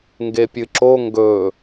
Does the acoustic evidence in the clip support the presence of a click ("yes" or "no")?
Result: yes